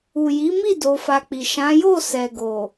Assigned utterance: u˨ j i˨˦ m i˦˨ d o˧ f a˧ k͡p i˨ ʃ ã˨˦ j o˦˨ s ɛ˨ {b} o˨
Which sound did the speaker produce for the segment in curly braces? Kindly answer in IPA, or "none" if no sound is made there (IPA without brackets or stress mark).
ɡ